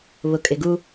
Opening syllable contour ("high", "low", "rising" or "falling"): low